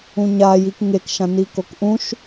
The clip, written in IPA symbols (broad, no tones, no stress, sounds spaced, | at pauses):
ũ ɲ a j i k ŋ e k ʃ ã n i k o k ʔ ũ ʃ